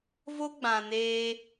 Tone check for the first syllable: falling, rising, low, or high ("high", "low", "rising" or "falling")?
high